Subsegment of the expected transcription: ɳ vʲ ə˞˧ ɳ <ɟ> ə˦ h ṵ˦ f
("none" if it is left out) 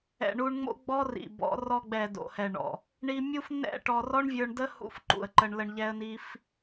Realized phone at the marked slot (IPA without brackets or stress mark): d